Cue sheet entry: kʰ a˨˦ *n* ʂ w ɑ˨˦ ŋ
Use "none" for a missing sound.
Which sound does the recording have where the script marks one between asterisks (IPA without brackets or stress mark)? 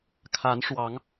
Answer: n